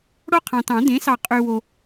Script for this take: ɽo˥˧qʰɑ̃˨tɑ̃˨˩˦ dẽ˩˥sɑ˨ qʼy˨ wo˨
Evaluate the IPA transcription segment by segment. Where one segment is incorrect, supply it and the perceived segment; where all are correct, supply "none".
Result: none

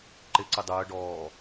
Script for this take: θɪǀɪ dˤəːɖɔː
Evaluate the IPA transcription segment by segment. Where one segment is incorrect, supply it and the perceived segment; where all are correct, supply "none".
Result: θ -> ǃ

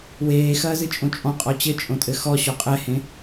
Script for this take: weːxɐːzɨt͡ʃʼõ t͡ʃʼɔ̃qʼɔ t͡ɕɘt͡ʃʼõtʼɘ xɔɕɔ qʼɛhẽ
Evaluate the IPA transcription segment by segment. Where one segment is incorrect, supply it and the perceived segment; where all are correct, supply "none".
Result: none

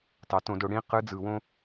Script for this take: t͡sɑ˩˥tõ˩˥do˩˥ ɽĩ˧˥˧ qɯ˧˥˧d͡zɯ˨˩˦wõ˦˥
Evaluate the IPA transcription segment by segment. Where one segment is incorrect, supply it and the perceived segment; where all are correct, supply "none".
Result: t͡s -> t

